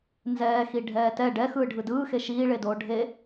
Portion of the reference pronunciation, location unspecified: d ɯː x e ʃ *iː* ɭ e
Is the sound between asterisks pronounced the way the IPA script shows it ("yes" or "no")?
yes